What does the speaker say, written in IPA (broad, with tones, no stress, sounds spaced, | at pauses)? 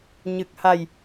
ɲ ɨ˨˩ k̚ h a˨˩ j